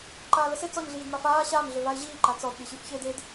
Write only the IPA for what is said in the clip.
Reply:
ǃaːləse t͡sɔɲ ɮiːdmafaː ɕaːm ɮøvaɪ̯ʑiː ǃat͡sɔd ɗiɕyfçeːded

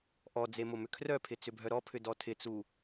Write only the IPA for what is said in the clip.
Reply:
ʔɔd͡ze mʊmʏkʰrœpʰɪ t͡sʏbʱœɾɔpʰʏ dɔtʰɪt͡su

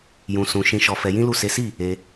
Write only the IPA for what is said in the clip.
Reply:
jũ˧sũ˧ ʃĩ˧ʃɔ˧ fɛ˧jĩ˦lu˦˨ se˨˦si˦˨ | e˧

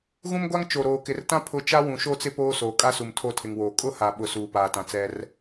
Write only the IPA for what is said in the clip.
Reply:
ɣũ˦mɡʷa˦ŋ t͡ʃo˨ɾoː˨kɪ˨rtã˦ pʰʊ˦˨ t͡ʃa˦ wũ˨ʃo˦˨t͡sɪ˦ poː˦ soː˨kʼa˦su˨m tʰo˦˨tʰɪ˨ŋwoː˨ kʼʊ˦ha˨ɓʊ˨ suː˨paː˨tã˨t͡sɛ˦r

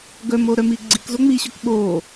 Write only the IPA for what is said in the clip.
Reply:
ɡœm oɾœmi ɡ͡ǀikzo ŋ͡miɕœk ɓo

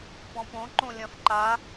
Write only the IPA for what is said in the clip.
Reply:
pɔ̃põ ǃõlʲɐ̃f ǃa

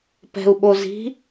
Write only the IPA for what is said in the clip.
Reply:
pɛ̤u̯ɓozi̤

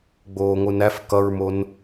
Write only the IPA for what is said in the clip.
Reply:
ɡ͡boːŋʷɯnæf kʌɹmon

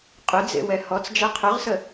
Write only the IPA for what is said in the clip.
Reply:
qʼʏd͡zḛwɛ hɔt͡sd͡ʒɛ qʰʏʁsə

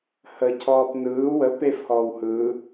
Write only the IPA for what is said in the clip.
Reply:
həcʰɔːp nɯː wə pefhɔːw hɯː

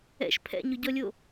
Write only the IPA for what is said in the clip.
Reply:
ɛ̰ʃ pʰɛ̰ɲʊɟɔlʲo

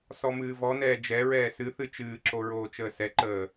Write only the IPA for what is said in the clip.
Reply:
sɔmɨːvɔnɛː d͡ʒɛɹɛː sɨθɨ t͡ʃɨːǁo ɹoːt͡ʃəːsɛǃəː

